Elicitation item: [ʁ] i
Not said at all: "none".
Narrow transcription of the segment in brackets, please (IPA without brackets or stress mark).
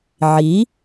ʕ